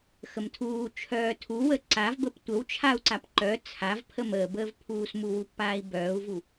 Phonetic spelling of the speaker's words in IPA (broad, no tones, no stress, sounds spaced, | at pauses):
x ə m tʰ uː t͡ʃʰ œː tʰ u w ə ǀ a v b ə p tʷ ə w t͡ʃʰ a u̯ ǀ a p ǃ œ t͡sʰ a v pʰ ə m əː b əː v pʰ uː s m u w u pː aː i̯ b œː u̯ v u